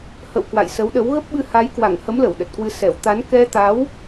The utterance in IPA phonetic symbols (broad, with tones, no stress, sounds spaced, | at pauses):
h ə̰˧˨ w k w a̰˧˨ j s ə˨˦ w ɗ ə˨˦ w ɣ ə˦˥ p̚ ɓ ɨ˧ h a˨˦ j k w a˧˩ ŋ h ə˨˦ m l ə˧˩ w ɗ ə˨˩ t̚ k w ɨ˧ s ɛ˧˩ w t̪ a˨˦ n k ɛ˧ t̪ a˨˦ w